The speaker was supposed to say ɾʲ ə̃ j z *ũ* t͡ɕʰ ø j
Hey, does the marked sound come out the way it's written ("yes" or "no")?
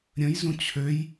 yes